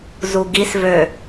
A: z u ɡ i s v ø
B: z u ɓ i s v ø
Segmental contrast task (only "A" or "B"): A